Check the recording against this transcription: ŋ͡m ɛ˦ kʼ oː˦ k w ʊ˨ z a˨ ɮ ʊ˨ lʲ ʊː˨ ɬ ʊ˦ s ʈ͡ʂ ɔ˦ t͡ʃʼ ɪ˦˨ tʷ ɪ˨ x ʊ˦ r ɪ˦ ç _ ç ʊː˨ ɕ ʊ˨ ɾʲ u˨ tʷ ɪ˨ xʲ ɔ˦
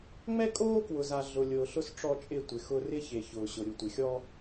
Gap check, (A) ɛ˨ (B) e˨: B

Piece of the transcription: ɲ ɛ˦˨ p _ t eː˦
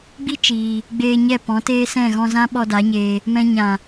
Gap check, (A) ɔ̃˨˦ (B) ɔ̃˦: A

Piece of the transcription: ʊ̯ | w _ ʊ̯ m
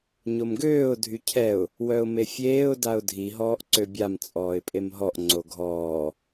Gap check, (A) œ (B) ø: A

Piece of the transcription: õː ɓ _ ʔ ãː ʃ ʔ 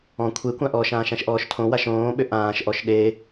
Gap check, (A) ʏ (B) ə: A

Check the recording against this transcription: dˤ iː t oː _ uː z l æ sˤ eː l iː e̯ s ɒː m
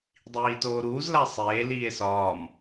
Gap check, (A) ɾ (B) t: A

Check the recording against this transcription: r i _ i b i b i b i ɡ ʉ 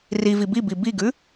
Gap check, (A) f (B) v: B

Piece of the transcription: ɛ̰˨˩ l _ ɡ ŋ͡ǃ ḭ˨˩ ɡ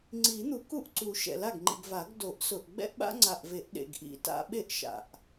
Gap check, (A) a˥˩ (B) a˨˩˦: A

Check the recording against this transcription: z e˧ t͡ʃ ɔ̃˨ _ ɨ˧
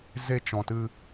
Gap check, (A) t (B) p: A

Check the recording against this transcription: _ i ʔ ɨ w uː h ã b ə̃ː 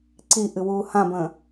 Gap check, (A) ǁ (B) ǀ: B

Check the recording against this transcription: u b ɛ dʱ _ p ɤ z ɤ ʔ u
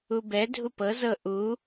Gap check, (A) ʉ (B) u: B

